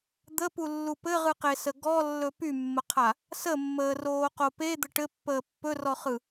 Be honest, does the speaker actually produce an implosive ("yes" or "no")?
no